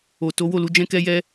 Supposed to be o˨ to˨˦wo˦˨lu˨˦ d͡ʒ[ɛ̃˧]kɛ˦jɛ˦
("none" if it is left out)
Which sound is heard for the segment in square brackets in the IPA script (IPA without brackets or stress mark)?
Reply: ɛ̃˦